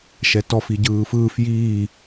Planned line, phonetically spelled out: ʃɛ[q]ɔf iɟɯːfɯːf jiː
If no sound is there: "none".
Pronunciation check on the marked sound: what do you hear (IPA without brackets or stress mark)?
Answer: t